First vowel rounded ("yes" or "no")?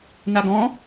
no